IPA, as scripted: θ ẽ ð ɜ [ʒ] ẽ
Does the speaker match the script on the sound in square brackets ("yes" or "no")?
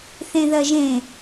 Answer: yes